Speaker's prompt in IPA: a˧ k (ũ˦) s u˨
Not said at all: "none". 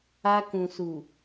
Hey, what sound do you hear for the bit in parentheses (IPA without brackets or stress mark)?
ũ˨